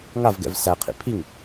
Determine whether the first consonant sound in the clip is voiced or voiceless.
voiced